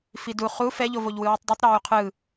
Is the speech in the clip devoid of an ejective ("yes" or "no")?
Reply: yes